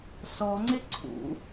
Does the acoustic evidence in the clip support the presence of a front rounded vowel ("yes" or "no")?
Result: no